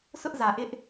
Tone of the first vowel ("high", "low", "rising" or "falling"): high